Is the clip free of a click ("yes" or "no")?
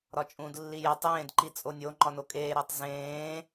no